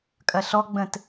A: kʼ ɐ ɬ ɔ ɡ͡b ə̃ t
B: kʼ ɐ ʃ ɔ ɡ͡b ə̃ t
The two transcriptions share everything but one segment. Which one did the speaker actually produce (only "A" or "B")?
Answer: A